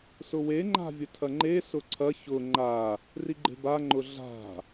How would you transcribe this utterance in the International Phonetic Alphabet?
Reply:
sʊwe ŋ͡ǃa̤vʲʊtʰɐŋ͡ǃe sʊǀʰɐ çʊ ŋ͡ǃa | riɡ͡ǃe̤ba ŋ͡ǃʊɮa̤

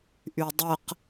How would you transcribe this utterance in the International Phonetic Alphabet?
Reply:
ʔydˤəq

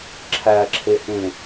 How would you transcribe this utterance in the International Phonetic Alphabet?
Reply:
ǁʰæǁʰehẽ

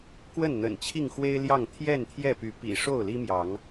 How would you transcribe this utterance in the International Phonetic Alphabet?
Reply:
kwə˥˨nn̪ə̰˨˩n t͡ɕʰi˥˨ŋxwe˦ɪ̯ljɑ˥˨ŋ t̪ʰjɛ˥˨nt̪ʰjɛ˥˨py˨˦ pḭ˨˩ ʂo˥˨ʊ̯li˦mjɑ˨˦ŋ

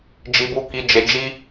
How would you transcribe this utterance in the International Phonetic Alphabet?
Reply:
d͡ʒi˧bu˧ki˧d͡ʒe˧ d͡ʒi˦

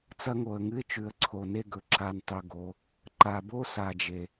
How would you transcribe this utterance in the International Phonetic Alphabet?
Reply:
t͡sɐ˦ŋo˨ə̯ŋɨ˦ɪ̯t͡ʃʉ˨ə̯ ǀʰo˨ne˦ɡɵ˨ ǁa˨ntˤɵ˨ ɡo˨ | ǃa˨bo˦ sa˨d͡ʒe˨

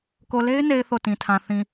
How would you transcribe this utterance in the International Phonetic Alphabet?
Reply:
ko˨le˦ɪ̯ne˨ɪ̯ θo˦˨tĩ˨tʰã˨ θĩ˨

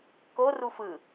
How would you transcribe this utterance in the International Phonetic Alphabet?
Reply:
ko rufɯ

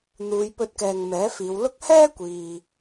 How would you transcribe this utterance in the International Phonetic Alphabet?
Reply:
n̪uː˨˧jpɵ˧t̚kɛː˨ŋ mɛː˨˥fiː˨˧wlʊ˥k̚ hɛː˥kʷiː˨

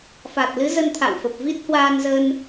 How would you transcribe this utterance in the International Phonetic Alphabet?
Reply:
fa˨˩t̚lɨ˨˦ zə˧nt̪ʰa̰˧˨wfə˨˩p̚ vi˦˥t̚hwaː˧nzə˧n

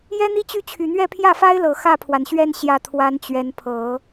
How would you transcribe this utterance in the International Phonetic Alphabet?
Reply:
jɛ˥n̪i˥ t͡ɕy˥˩t͡ɕʰy˨˩n̪ɥɛ˥˧ pʰjä˥˩fa˥ɪ̯lɤ˨˩ xä˥˩pʰwa˩nɕɥɛ˥˧n ɕjä˥˩t̪ʰwa˥nt͡ɕɥɛ˧˥n pʰɤ˨˩˦

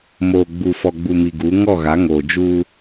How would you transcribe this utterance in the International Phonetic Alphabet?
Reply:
moː˨ɡ͡bu˨fɔ˨ ɡ͡bu˨ mi˨ɡuː˨˦ ŋɔ˦˨ɣa˨˦ŋoː˨ d͡ʒuː˦

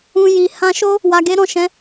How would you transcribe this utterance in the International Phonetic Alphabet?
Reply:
ũ˧ji˨ hã˧ʃo˦ | wa˧ɡe˦ɾɔ̃˦˨ʃɛ̃˨˦

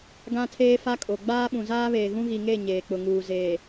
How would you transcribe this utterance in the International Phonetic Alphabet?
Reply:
ɡã˦tʰeː˦fa˦kʼo˨ ɡ͡baː˦ɓũ˨zaː˦βeː˨ ɣũ˦ɣi˨ŋe˦˨ ɲeː˨k͡pʊ˨ŋuː˨ zeː˨

